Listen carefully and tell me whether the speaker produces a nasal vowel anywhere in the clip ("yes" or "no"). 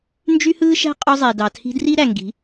no